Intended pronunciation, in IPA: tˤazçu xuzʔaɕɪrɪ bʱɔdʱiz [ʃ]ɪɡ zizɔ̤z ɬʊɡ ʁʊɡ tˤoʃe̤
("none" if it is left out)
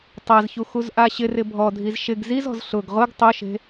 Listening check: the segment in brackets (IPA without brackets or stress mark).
ʃ